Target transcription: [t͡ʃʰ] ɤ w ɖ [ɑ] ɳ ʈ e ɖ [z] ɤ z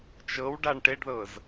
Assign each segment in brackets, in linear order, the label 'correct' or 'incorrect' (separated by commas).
incorrect, incorrect, incorrect